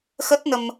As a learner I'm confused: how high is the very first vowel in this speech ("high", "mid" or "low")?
mid